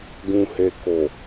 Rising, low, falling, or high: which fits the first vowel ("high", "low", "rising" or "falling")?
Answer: low